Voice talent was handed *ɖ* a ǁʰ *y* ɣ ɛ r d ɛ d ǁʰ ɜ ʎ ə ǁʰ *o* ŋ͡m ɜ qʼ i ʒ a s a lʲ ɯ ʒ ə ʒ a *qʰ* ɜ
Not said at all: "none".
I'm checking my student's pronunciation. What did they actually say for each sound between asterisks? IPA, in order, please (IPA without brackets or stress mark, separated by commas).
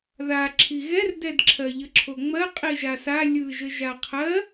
ð, i, o, qʰ